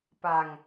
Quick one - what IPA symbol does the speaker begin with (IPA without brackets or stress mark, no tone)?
p